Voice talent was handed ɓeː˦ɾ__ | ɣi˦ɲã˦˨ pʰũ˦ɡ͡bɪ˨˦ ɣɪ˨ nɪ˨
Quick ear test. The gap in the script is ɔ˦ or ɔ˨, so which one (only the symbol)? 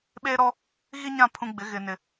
ɔ˦